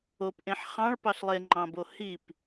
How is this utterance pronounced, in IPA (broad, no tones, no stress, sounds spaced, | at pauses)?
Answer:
o p ʔ ẽ ħ χ ɑ̃ ɭ p ɑ ɬ lˠ e ŋ͡ǃ ɑ̃ b o h i p